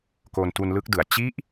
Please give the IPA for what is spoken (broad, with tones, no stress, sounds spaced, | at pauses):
k o˧ n t u˧ n l ɯ˦˥ k̚ d ɯ˨˩ a̯ t͡ɕ i˦˥ ʔ